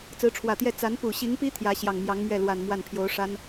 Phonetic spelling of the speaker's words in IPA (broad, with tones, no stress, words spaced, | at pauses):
t͡sɹ̩˧˥ʈ͡ʂʰwä˨˩t̪jɛ˥˩ t͡sa˧˥npu˨˩ɕi˧˥ŋpi˥ t̪ʰjä˧˥ ɕjɑ˨˩ŋmjɑ˧˥ŋmɥɛ˥˩lwa˨˩n mwa˥˩npʰjo˧˥ʊ̯ʂa˥n